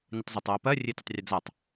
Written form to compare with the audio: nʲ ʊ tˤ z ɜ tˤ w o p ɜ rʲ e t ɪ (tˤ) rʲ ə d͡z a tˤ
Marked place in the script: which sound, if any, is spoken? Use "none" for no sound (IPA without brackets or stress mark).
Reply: tˤ